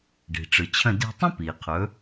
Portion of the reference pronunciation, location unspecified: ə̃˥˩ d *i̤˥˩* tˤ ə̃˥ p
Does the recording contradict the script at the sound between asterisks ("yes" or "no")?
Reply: yes